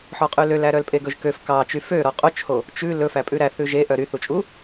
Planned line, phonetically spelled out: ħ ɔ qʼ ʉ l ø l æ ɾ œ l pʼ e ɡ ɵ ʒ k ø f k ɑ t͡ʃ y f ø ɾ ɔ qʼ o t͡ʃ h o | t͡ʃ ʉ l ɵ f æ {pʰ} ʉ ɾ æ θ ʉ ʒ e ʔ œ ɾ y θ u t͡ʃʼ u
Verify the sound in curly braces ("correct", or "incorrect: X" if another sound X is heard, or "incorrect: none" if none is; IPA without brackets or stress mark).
incorrect: pʼ